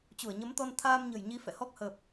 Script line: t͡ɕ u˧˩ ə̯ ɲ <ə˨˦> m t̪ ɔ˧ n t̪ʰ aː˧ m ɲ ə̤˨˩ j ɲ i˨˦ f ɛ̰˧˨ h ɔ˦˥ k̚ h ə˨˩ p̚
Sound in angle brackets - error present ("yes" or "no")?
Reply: no